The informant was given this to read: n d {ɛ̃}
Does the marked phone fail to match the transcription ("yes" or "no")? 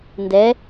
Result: yes